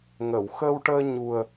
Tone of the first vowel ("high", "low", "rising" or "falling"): low